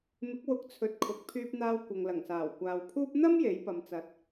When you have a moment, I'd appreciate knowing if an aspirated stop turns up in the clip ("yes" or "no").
yes